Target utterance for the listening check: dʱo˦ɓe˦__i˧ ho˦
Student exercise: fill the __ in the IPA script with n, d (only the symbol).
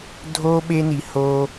n